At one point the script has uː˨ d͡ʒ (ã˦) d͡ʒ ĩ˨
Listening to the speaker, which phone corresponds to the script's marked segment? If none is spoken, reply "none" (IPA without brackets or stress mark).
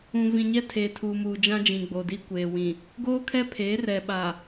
ã˦